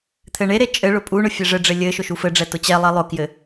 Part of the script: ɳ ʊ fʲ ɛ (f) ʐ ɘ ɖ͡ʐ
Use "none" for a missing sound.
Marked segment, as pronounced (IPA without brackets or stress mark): none